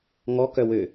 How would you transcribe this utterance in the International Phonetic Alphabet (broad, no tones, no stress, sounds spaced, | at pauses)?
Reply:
ŋ ɔ k œ w ø